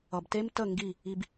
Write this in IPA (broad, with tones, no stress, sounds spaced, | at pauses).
ʌ˨ b t e˦ m t ə˦˨ ŋ ɡ i˦˨ | i˧ b